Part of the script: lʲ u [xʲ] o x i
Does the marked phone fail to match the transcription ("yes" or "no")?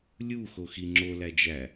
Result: yes